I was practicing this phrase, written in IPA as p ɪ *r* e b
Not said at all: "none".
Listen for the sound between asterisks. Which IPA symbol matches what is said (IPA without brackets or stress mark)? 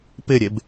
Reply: ɾʲ